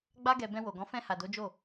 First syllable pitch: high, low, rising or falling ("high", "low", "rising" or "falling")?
high